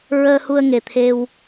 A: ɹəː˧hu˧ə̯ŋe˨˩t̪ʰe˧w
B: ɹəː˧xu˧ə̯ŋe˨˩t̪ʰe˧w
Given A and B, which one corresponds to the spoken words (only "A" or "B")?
A